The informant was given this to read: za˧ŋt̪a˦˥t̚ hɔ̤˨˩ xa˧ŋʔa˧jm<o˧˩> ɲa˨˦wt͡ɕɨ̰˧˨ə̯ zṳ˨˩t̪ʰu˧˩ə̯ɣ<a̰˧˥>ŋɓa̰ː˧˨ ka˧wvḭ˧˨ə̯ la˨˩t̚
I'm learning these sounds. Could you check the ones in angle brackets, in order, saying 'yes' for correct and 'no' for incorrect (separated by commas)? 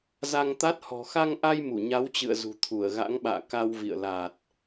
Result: no, yes